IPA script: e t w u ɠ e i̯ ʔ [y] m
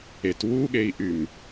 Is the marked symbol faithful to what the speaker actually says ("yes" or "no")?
yes